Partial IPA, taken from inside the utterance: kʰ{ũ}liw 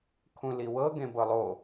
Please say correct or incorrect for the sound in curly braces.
correct